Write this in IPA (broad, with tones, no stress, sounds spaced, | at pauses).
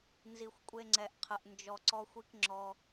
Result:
n z i˧ xʷ kʷʼ e˦ ŋ͡ǀ ɛ˧ ʔ qʰ ə˧ ʔ n d͡ʒ ɔ˧ ǀ ɔ˦ xʷ i˦ k ŋ͡ǁ ɔ˦